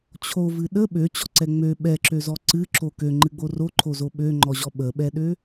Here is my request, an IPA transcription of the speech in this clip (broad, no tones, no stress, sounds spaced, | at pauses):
t͡ɕʰ o v ɨ ɗ ə ɓ ø t͡ɕ ɔ ǀ ɛ ŋ͡m ø ɓ ɛ ǁ ø z ɔ ǀ ɨ ǁ o k ø ŋ͡ǃ ɨ ɡ͡b o r o ǃʰ o z o ɓ ø ŋ͡ǃ ɔ ʑ ɔ ɓ ə ɓ ɛ ɗ ø